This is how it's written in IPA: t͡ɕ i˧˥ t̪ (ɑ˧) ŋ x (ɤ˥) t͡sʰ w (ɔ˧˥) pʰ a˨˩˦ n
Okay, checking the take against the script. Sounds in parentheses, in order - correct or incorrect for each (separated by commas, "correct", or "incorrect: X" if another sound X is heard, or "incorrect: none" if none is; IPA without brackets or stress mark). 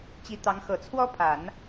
incorrect: ɑ˧˥, incorrect: ɤ˨˩, incorrect: ɔ˥